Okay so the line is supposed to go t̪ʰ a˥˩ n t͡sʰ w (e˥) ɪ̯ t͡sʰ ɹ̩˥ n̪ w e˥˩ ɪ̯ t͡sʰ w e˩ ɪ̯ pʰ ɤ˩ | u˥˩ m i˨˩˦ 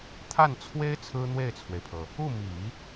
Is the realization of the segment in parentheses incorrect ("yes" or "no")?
no